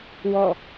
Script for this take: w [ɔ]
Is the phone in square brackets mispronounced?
no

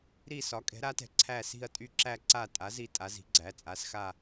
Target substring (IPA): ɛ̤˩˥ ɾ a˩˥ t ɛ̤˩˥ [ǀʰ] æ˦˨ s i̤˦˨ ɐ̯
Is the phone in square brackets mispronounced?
no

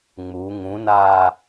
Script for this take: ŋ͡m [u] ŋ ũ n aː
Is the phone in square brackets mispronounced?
no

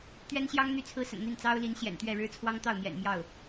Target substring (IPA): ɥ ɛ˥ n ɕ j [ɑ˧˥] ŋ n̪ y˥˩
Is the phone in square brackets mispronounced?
yes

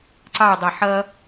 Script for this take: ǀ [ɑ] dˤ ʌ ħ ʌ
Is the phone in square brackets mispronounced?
no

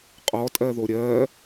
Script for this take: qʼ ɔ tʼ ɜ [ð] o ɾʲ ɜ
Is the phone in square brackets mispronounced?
no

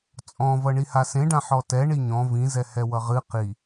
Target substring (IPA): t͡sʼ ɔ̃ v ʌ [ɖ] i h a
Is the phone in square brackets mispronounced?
yes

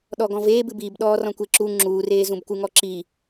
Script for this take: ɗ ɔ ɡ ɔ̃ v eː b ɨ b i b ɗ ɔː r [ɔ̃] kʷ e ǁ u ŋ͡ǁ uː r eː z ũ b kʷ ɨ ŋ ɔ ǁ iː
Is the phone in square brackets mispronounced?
no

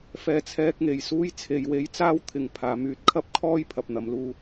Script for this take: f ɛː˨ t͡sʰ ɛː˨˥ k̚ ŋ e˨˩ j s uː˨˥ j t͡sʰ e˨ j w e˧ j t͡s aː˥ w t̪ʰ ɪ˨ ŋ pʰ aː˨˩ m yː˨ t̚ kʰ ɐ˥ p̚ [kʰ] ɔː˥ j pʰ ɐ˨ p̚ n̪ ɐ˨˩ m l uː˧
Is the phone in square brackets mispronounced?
no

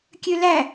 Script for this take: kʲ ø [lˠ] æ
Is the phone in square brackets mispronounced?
yes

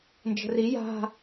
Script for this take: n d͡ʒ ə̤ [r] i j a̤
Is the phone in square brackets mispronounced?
no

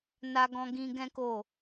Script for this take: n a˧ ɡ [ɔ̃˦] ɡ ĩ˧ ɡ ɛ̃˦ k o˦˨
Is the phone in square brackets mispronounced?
yes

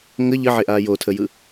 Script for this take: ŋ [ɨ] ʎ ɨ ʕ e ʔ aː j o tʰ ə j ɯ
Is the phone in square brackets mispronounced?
yes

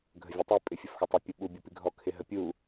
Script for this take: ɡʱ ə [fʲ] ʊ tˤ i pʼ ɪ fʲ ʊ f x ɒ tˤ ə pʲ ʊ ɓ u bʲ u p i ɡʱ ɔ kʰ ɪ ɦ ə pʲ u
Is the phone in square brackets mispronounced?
yes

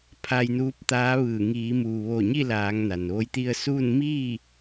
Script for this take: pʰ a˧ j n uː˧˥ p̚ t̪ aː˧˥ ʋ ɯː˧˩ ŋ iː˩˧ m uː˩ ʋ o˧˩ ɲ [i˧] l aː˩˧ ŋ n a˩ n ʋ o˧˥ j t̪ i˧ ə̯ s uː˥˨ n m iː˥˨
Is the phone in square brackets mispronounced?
yes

